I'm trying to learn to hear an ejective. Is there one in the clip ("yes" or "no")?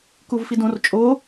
yes